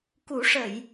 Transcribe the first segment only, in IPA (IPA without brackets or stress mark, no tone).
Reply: k